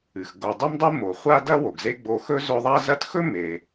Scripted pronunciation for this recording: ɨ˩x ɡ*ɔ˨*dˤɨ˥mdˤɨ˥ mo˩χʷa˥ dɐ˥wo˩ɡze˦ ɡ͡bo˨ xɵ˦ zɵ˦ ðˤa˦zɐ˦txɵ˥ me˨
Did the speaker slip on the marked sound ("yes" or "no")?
yes